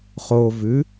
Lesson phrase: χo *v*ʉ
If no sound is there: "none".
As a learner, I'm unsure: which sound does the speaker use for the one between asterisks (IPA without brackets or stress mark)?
v